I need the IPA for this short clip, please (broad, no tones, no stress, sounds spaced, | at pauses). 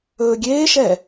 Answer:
ɵː ɡʲ eː ʃ ɛ